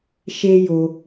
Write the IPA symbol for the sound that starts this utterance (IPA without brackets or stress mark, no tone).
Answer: ʃ